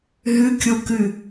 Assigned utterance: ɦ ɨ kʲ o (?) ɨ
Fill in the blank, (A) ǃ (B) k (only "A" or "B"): B